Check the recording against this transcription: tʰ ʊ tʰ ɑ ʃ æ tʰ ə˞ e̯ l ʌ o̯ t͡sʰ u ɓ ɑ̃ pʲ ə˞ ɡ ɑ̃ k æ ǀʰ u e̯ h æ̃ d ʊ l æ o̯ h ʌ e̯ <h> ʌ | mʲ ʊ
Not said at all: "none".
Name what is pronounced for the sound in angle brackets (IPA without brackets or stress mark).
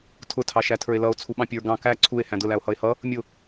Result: h